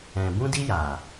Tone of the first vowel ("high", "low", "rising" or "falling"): low